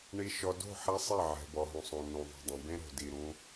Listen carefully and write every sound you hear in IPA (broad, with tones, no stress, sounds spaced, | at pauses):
ɳ i˨ ʃ ɔ˨ d o̤˦˨ ħ a˦ sˤ ɛ˦˨ ʕ ɛ̤˨ b ɔ˨ ɦ ũ˨ sˤ õ˨ n ũ˨ ðˤ ṳ˨ dˤ ẽ˨ b ẽ˦ ɾ o̤˨ d i˨ ɾ ũ˦